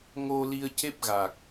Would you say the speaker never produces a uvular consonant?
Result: yes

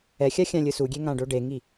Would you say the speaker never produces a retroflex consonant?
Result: no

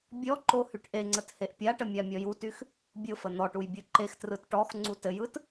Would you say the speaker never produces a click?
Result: no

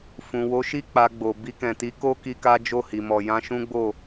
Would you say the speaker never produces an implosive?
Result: yes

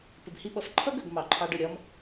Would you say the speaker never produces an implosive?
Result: no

